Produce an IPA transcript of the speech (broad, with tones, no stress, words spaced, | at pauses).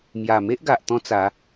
mja˨˩me˦ʔɡa˨ʔ t̪ɔ̃˦t͡sa˨˦